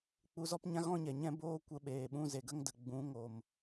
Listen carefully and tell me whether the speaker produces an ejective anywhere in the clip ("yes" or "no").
no